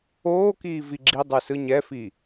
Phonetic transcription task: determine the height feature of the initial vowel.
mid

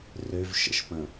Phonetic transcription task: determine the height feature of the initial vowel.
mid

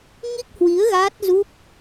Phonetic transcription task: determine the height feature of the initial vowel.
high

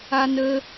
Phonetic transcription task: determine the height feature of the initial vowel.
low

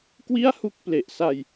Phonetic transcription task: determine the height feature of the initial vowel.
high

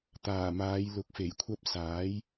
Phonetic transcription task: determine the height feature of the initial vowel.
low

